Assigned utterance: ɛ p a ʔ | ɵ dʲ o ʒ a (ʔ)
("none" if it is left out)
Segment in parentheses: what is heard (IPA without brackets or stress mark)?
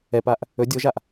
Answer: ʔ